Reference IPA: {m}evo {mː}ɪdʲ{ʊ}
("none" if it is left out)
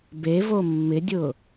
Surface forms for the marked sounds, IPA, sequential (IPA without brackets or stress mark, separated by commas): b, mː, ʊ